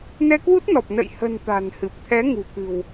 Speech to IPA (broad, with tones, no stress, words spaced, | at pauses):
nɛ˧kwu˦˥t̚nɔ˨˩p̚ nə̰˧˨jhə̤˨˩n t̪a̤˨˩nhɨ˨˩p̚t̪ʰɛ˨˦ ŋṳ˨˩kɨ̤˨˩w